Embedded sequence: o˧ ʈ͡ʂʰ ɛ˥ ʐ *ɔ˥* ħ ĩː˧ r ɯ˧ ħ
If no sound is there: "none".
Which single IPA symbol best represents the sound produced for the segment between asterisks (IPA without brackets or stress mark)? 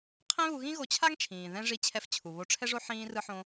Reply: o˥